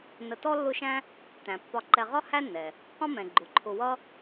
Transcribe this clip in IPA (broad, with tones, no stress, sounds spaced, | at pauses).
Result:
n ə˨ t ɔ˥ lː ʊ˦ ʃ æ̃˥ | t æ̃˩ pː ɒ˨ ǃ ɛ˨ ʁ ɒ˥ h æ˥ nː ɛ˩ | q ɔ̃˦ m ɛ̃˩ ɡ͡ǃ ʊ˩ ǃʰ ʊ˨ w ʌ˦